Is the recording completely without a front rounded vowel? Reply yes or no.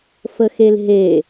yes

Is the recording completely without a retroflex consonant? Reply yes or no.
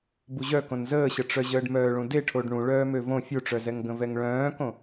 no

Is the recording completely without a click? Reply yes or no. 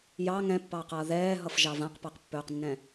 yes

